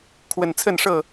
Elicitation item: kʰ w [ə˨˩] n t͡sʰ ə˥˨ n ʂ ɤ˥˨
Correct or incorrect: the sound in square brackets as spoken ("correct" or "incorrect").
correct